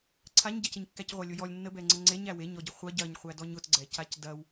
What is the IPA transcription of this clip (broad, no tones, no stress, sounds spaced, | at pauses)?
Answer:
ǀʰ a ɲ ɟ ɐ c ɪ ɲ kː æ c ʁʷ a lʲ ʊ j ɔ lʲ nː ə b ɛ ŋ͡ǀ ə ŋ͡ǀ e ɲ æ w e ɲ ɔ ɟ ɪ χʷ ɐ ɟ ɐ ɲ χʷ æ d ɔ ɲ ʊ t ɡ͡ǀ ɛ c a c d ɐ w